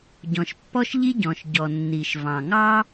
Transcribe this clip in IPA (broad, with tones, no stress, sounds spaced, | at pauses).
ɟ ɔ̃˩ ʃ pː ɔ˥ ʃ ʎ i˥ ɟ ɔ̃˩ ʃ ɟ ɔ˩ nː i˩ ʃ v ɑ̃˩ ŋ ɑ˥